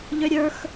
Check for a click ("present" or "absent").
absent